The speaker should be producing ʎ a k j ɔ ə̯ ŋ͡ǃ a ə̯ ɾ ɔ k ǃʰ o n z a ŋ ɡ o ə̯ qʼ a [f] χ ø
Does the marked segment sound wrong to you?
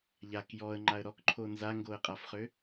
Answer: no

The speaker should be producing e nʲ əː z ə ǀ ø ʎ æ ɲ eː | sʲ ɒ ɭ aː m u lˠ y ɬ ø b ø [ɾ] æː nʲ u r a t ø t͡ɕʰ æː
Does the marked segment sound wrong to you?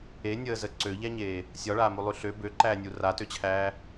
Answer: yes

